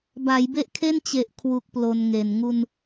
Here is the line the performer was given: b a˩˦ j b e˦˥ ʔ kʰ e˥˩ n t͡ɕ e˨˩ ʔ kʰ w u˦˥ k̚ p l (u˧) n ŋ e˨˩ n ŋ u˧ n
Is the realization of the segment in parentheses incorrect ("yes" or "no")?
yes